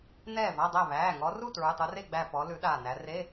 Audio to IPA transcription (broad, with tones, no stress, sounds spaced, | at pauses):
n ɛː˥˨ v a˧˥˧ dˤ æ˥˨ β æː˩˧˩ ŋ ɔ˨˦ r u˥˨ t ɹ ʉ˩˧˩ tˤ u˨˦ r e˥˨ ɡ͡b æ˧˩ p ɔ˨˦ l ʉ˨˦ ɗ aː˧˩ n æ˨˦ r e˧˥˧